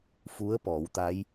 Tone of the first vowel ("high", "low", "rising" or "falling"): rising